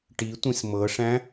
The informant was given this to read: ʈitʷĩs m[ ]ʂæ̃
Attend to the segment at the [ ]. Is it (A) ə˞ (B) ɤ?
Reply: B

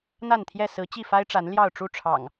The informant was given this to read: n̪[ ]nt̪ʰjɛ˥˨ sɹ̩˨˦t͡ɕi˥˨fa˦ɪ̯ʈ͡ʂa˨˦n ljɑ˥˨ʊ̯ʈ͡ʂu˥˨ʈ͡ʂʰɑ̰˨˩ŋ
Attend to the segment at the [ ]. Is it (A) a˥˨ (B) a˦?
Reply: A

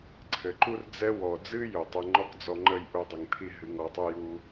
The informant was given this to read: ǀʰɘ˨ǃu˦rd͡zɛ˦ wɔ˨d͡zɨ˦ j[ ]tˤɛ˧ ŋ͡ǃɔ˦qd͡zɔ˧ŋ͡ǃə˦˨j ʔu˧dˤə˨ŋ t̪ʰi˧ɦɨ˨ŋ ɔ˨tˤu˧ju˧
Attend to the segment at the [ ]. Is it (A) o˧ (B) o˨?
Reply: B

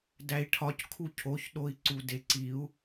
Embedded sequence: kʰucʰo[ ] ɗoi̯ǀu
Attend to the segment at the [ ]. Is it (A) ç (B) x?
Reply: A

